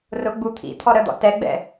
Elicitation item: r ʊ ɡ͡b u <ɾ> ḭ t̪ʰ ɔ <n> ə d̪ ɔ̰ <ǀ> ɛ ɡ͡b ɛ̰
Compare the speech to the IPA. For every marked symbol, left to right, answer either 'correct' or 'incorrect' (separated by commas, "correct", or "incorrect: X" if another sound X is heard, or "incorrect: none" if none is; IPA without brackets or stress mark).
incorrect: t̪ʰ, incorrect: ɾ, incorrect: t